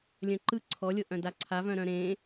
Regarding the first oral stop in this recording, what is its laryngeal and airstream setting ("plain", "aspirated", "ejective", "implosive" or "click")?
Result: click